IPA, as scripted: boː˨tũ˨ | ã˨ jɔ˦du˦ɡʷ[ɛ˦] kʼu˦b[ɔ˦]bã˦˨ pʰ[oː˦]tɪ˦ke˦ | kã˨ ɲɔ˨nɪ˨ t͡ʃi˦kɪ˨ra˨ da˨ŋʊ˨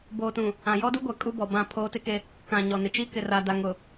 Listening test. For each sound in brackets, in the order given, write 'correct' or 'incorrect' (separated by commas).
incorrect, incorrect, correct